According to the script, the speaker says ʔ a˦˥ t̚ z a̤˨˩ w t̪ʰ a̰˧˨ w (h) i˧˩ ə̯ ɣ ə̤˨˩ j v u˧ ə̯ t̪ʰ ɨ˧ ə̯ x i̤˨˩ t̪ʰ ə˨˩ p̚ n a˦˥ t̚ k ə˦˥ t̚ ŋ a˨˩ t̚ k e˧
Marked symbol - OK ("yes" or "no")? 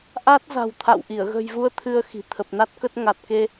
no